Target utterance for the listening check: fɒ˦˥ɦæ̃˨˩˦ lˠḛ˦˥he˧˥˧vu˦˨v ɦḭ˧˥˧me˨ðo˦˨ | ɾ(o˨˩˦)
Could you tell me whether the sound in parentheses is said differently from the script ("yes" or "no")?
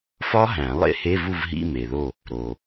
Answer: yes